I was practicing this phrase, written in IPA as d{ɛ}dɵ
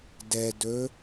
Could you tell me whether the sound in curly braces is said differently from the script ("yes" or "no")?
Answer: no